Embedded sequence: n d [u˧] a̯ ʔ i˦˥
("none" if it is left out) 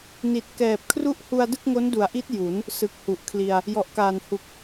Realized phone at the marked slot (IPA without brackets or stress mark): u˩˦